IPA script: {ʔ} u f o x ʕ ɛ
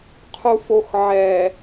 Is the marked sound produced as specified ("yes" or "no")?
no